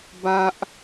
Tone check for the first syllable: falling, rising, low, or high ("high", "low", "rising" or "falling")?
high